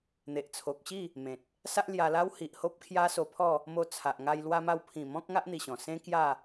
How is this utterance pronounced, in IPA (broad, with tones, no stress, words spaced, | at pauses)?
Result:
n̪e˨ʔt͡sʰo˨k̚ɕi˥˧ | mẽ˨t̚ | sa˦ʔlja˧la˦w hi˨ʔ ho˦p̚kʰja˦so˧pʰɔ˥˧ | mo˧t͡sʰa˨ʔ ŋa˧jlwa˧ ma˧wpʰĩ˨˩ mɔ̃˦k̚ŋa˦ʔ n̪i˧ɕɔ̃˨˩ sẽ˦kja˥˧